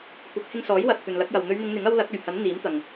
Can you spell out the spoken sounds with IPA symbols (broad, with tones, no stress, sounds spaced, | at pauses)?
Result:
kʷ ɐ˨˥ k̚ h ɪ˧ ŋ s ɔː˨˥ j w ɐ˨ t̚ t̪ ɵ˨ n l ɐ˨˥ k̚ j ɐ˨ w n̪ ɵ˨˧ ɥ n̪ ɪ˨˧ ŋ n̪ ɪ˨˥ ŋ ɐ˥ w l ɐ˨˥ k̚ ɵ˨˩ ɥ h ɐ˨˥ n n̪ iː˨˥ m t̪ ɐ˨ ŋ